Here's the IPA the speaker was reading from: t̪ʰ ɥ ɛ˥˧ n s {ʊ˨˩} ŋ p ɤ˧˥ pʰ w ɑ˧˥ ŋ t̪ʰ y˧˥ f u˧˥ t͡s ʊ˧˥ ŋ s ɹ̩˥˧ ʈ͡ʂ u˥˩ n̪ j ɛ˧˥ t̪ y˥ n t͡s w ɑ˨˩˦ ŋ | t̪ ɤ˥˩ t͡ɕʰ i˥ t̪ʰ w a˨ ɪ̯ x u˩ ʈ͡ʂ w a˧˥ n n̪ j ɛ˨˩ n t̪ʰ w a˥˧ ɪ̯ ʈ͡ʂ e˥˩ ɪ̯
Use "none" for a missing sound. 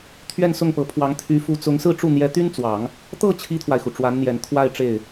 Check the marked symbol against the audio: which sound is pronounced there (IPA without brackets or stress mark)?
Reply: ʊ˥˩